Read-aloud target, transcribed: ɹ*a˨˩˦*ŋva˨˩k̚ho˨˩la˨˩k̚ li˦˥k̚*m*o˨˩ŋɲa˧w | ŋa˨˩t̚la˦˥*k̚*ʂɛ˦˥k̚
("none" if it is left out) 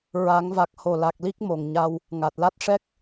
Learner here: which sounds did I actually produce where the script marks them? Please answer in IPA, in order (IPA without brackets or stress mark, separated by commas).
a˨˩˦, m, t̚